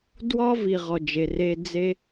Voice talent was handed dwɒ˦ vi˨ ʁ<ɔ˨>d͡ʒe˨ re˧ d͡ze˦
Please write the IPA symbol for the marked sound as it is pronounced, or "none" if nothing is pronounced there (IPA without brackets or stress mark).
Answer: ɔ˨